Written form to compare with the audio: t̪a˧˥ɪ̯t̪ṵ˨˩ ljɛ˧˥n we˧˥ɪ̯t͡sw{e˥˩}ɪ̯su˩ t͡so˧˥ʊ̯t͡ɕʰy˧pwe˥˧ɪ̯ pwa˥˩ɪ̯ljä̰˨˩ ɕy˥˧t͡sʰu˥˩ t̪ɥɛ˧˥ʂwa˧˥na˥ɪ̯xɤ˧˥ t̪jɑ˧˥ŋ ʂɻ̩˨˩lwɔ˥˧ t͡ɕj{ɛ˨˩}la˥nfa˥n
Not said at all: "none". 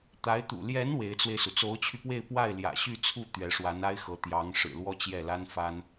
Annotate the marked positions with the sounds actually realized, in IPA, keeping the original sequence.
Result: e˧, ɛ˥˩

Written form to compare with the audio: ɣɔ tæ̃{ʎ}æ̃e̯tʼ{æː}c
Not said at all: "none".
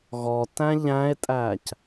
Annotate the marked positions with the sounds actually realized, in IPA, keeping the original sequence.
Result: ʎ, æː

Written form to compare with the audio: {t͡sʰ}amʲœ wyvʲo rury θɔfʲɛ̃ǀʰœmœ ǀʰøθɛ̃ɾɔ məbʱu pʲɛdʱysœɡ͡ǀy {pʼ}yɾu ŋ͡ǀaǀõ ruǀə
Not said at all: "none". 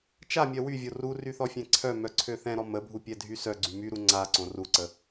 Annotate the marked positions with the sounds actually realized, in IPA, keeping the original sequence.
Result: t͡ʃ, m

